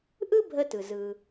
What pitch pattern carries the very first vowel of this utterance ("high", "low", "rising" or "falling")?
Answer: high